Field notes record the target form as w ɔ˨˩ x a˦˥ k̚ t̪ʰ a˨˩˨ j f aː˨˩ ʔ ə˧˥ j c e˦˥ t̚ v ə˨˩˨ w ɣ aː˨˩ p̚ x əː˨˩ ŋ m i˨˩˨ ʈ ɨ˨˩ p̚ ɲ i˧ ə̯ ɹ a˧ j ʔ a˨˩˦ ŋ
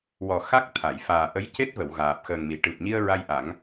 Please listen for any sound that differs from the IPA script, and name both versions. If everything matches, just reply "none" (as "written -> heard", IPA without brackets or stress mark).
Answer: none